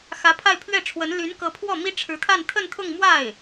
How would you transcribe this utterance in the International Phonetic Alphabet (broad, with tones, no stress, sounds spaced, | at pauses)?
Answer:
x ä˧˥ pʰ a˥˧ ɪ̯ pʰ ɥ ɛ˥˩ ʈ͡ʂʰ w ə˧˥ n l y˧˥ n k ɤ˧˥ pʰ w ɔ˥˩ m i˥ ʈ͡ʂʰ ɻ̩˧˥ t̪ʰ a˥˧ n t̪ʰ ə˥˧ n t̪ʰ ʊ˥˧ ŋ m w a˥˩ ɪ̯